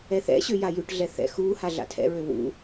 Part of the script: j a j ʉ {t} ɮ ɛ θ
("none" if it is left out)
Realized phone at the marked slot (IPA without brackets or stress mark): ʈ